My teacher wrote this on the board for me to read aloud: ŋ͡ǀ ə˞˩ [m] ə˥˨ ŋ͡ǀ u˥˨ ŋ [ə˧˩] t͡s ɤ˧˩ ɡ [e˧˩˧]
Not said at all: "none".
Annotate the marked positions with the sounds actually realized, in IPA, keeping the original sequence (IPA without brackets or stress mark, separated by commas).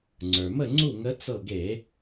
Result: m, ə˧˥, e˧˩˧